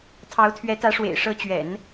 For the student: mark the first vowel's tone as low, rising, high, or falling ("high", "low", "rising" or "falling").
rising